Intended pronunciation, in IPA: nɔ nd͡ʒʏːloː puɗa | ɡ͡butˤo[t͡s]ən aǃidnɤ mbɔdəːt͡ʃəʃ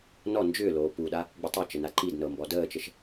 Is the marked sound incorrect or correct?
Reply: incorrect